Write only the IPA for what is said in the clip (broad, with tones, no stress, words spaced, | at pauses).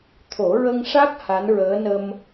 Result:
t̪ʰo˨˩˦ɹə˧ŋʂa˦˥k̚ ha˧˥nɹəː˧˥ nə˧m